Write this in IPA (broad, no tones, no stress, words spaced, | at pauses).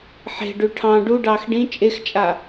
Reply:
ħe̤ɖʉ ʈʰɑ̃ ɖuɖɑːx ɖĩ t͡ʃʼext͡ʃʼa